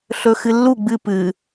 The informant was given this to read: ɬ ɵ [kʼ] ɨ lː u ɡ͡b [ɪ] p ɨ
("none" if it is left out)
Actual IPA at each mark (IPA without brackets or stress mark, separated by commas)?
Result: x, ɨ